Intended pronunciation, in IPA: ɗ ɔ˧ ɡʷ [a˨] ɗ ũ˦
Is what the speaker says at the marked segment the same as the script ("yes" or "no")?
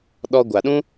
yes